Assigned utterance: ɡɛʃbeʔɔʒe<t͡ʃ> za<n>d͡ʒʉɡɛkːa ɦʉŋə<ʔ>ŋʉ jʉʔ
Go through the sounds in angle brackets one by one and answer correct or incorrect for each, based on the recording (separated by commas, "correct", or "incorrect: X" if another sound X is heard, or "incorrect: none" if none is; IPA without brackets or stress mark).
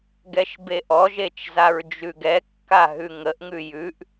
correct, incorrect: ɹ, correct